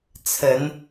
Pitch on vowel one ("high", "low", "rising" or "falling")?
rising